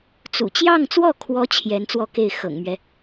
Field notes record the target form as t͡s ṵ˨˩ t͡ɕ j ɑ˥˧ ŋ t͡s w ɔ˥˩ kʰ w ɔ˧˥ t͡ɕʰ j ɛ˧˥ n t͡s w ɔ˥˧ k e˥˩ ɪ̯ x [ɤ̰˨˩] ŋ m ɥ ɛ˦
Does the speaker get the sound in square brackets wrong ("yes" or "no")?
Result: no